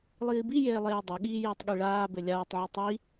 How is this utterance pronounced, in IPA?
lˠ iː b i j eː lˠ eː dˤ o ɠ iː j iː tˤ ɠ i ɭ aː b ɘ lʲ aː tˤ ʕ ɐ tˤ i

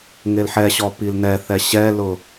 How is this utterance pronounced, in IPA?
ŋ e l ħ ɛ ɕ ɔ p i l n ɛ θ ɛ ɕ ɛ l ʊ

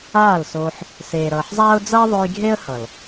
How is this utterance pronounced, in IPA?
aː˦˨ l s oː˧ ħ | s eː˨ ɾ ʌː˨ ħ zˤ aː˦ ʊ̯ d͡z ʌː˦ ðˤ o˧ j ɡʱ e˦ ə̯ h ʌ˨ l

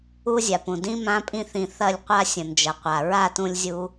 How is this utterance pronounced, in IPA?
u˦ zʲ a˨ p ũ˨ d ĩ˦ m ã˧ pʼ ĩ˧ θ ĩ˨ θ ɐ˦˨ lʲ qʷ a˦ sʲ ə̃˨ n d͡ʒ ɐ˨ qʷ a˨ ɹ a˦˨ t ũ˧ lʲ zʲ u˧

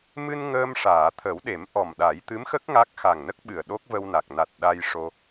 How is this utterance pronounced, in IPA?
m ɨ˧ n ŋ əː˧ m ʂ aː˨˩˨ t̪ʰ ə˨˩˦ w ɗ e˨˩˦ m ʔ ɔ˨˩ m ɗ a˨˩˦ j t̪ ɨ˧˥ m x ə˦˥ k̚ ŋ a˦˥ k̚ x a˨˩ ŋ n ə˦˥ k̚ ɓ ɨ˨˩ ə̯ ɗ o˦˥ k̚ v ə˧ w n a˨˩ k̚ n a˨˩ t̚ ɗ a˧ j ʂ o˧

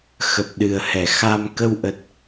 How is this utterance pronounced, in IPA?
x ə˨˩ p̚ ɗ ɨ˨˩ ə̯ h ɛ˧˩ x a˧ m k ə˧ w ʔ ə˨˩ t̚

